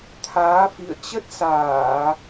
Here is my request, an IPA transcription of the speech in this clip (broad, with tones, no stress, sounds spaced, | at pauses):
t̪ʰ aː˨˦ f ḭ˧˨ ə̯ t͡ɕ ə˦˥ t̚ s aː˧˩˨